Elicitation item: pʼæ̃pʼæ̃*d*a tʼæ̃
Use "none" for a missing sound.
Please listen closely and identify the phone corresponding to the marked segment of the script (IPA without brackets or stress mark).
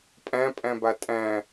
b